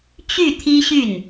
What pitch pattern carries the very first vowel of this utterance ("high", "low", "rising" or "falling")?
falling